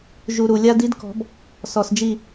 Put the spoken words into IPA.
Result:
ʒ u˨ ɾ u˨ lʲ a˦ d i˦ d k ɔ̤˨˦ b | s ɔ˨ s d͡ʒ i˦˨

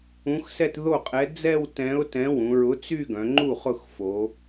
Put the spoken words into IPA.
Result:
ũ˨˥ x s ɛ˥˧ t ð o˥˩ qʼ ɛ˨˥ d͡z ɛ˥˧ w t ɛ̃˨˥ ʊ̯ t ɛ̃˨˥ w ũ˩˧ ɹ ʊ˨˥ t͡s y˥˧ ɡ œ̃˩˧ ŋ͡ǃ u˥˩ χ ʊ˥˩ x f o˩˧

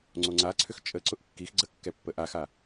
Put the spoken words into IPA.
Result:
ŋ͡ǀ o ŋ͡ǀ a ǀʰ ʏ x t͡ʃʼ ə ǀ ʊ ʔ kː i x ɡ͡ǀ ə kː ɛ pː ə ʔ a x a

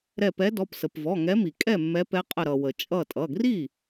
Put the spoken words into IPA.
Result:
ɾ ɛ˧˩ p ɛ˨˦ d ɔ˩˧˩ p s ə˩ p v ɔ˩˧˩ ŋ ɛ˨˦ m i˩ kʼ ɛ˥˩ mː ɛ˨˦ p ɛ˨˦ qʼ ə˧˩ ɾ ʌ˩ w ə˩ t͡ʃʼ ʌ˧˩ tʼ ʌ˩˧˩ ɡ r i˥˩

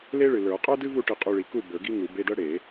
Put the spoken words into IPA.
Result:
l e˥ ɭ ɨ˨ l ə˞˨˩˦ qʼ ə˞˥ d ɨ˥ v u˥˨ ʈ ɨ˥˨ qʼ u˧˥˧ ɭ i˨ k u˥˨ b ə˞˨˩˦ ɡ i˥ ŋ u˨˩˦ b e˧˥˧ d ɤ˥ ɽ e˨˩˦

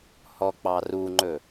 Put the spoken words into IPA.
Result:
h ɔ k͡p ɑ r u ŋ͡ǃ ɵ

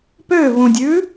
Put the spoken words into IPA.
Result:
p ø v ũ dʲ ʉ

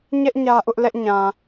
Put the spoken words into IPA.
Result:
ɲ ɛ˦ ʔ ɲ ä˦ ʔ ʊ˦ ʔ l ɛ˦ ʔ ɲ ã˨

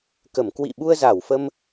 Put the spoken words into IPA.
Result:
k ə˧˩ m k w ḭ˧˨ ɓ u˧ ə̯ z a˧˩ w f ə˧ m

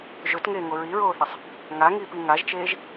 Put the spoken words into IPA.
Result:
ʒ ɵ t ŋ eː ŋ o ɹ i ɹ oː θ ɐ sˤ | ŋ a ŋ iː p i ŋ a ʒ t͡ʃ eː ʒ

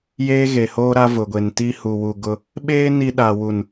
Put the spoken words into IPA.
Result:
j eː˦ ɣ e˨ h oː˦ ɾ a˦ v ʊ˨ ɡʷ e˨ n t i˦ h u˨ w u˨ ɡ ʊ˦ | ɓ eː˦ n i˦ ɗ a˨ w u˨ n

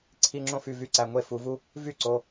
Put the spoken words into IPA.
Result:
ǀʰ i˧˥˧ ŋ͡ǁ õ˥˩ f y˧˩ v y˧˥˧ ǀ æ˩˧˩ ŋʷ e˥˩ f u˨˦ v u˥ | v y˥˩ ǀ o˩˧˩

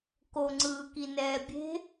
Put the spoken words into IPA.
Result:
k o ŋ͡ǀ ɯː k i n ɛː bʲ e̤

